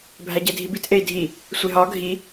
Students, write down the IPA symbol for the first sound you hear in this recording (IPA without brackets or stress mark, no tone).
bʱ